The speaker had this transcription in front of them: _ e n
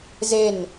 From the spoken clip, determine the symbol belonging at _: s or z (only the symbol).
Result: z